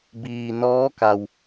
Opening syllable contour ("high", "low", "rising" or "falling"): low